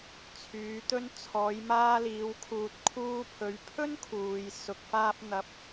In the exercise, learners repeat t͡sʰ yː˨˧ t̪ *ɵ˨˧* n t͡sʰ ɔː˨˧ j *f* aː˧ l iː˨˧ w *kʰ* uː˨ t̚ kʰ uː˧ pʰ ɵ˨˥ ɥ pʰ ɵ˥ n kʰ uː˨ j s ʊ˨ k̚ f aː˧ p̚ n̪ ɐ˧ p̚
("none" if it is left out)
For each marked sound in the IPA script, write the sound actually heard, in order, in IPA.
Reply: ɵ˧, m, kʰ

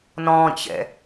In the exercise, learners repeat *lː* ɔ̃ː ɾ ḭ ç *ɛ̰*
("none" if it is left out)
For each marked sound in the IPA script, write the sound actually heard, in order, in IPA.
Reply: n, ɛ̰

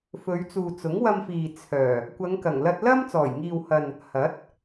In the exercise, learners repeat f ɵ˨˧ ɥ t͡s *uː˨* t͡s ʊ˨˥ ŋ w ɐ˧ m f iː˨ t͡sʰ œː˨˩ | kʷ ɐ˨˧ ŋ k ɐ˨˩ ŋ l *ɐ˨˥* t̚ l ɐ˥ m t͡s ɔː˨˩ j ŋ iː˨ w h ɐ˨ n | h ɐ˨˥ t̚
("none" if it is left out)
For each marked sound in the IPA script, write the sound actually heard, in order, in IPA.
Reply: uː˨, ɐ˧

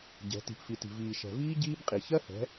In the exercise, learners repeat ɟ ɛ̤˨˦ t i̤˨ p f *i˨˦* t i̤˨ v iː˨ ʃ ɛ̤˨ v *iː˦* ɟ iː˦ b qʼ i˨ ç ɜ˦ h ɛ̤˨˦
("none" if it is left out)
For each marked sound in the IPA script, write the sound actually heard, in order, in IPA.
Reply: i˨, iː˦

